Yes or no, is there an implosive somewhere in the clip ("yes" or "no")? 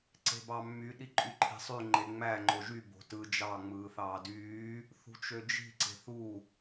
yes